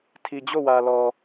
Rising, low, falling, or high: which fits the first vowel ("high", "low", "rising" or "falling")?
low